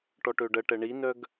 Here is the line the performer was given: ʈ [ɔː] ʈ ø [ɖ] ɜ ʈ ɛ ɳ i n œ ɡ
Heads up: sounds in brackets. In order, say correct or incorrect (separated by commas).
incorrect, correct